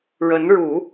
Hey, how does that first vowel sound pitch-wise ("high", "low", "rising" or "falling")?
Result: rising